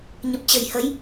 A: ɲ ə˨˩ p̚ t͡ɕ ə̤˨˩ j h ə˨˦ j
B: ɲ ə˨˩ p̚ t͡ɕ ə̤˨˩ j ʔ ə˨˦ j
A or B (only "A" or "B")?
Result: A